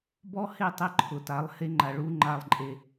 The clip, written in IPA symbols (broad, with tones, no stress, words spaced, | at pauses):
bɔ˦he˦˨ tˤe˦ǃʰʊ˨ta˨˦lˠ he˦ŋ͡ǃa˨ ɭu˦ŋ͡ǃa˦˨lˠǃʼe˦